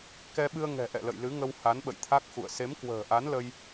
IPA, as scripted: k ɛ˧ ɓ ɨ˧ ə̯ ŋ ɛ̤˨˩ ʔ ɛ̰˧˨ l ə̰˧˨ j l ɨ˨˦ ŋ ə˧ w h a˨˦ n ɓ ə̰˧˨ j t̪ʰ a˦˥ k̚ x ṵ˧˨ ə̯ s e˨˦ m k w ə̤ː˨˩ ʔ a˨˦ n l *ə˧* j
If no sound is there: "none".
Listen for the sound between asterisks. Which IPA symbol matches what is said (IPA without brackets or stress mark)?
ə˧